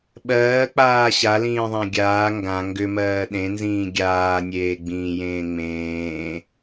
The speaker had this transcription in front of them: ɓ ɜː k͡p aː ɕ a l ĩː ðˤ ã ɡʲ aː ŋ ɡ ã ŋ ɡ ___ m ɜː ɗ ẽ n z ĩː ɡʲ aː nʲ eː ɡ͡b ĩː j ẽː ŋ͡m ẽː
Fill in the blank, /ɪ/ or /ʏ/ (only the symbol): ʏ